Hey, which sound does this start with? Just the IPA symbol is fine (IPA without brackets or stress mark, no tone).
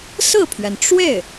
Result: s